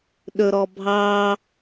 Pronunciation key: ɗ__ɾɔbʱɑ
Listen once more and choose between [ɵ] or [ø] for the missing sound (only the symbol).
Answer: ɵ